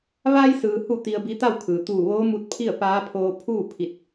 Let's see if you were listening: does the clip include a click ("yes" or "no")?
no